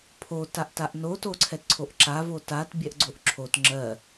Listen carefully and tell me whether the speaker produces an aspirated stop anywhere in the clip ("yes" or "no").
yes